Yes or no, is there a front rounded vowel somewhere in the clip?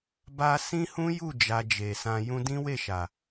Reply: no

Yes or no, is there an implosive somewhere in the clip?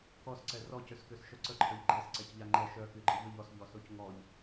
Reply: no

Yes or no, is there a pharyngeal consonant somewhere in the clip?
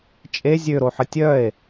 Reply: yes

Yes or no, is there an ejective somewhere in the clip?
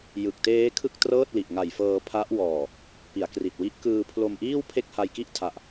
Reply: no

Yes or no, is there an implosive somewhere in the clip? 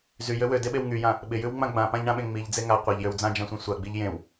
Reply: yes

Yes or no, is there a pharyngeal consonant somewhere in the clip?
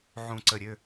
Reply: yes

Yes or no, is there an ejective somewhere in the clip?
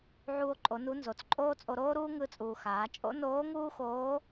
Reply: yes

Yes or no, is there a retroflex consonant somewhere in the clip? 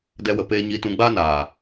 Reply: no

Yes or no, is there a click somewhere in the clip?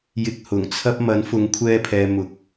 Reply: no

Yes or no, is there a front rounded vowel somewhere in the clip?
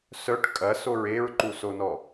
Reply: yes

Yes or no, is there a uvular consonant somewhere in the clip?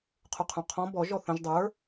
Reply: yes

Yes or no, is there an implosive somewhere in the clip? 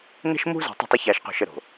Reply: no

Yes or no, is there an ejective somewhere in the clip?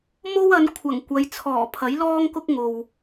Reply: no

